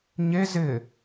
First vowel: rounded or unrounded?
unrounded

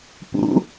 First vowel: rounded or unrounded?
rounded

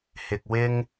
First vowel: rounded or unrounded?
unrounded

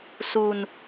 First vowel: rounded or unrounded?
rounded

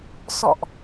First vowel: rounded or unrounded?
rounded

